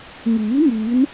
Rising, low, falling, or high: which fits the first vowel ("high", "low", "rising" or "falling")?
rising